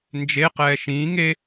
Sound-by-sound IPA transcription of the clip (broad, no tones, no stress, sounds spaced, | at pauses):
n d͡ʒ e q ɛː ʃ ĩː ŋ e